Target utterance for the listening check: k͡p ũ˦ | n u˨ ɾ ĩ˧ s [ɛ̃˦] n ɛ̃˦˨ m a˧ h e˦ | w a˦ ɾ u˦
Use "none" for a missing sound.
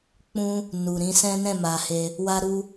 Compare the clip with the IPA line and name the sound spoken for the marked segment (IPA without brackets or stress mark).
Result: ɛ̃˦